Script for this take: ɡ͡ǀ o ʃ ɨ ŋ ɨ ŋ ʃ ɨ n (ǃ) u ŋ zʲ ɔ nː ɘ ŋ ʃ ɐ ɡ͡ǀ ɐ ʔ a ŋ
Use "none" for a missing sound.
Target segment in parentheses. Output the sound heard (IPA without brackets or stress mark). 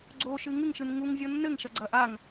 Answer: ŋ